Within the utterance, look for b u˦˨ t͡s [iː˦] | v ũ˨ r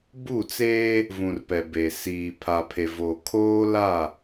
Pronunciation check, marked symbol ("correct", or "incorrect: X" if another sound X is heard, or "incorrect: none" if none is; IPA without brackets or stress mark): incorrect: eː˦